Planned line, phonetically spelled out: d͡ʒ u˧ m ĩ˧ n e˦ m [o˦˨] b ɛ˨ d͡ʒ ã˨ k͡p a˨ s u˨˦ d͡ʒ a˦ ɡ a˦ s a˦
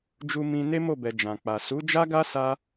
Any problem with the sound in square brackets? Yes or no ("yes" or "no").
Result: no